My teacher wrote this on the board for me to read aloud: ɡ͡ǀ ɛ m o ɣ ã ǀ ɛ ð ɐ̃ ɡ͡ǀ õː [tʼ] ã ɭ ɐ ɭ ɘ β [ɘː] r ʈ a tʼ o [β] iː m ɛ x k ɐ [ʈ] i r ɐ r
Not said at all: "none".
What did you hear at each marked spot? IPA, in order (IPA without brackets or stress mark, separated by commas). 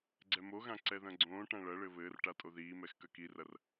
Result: ʈ, ɘː, ð, k